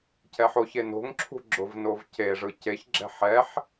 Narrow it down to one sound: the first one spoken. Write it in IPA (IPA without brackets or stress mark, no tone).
c